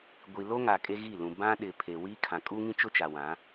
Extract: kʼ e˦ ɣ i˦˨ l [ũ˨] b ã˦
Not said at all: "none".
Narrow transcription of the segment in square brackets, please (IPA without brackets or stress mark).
ũ˨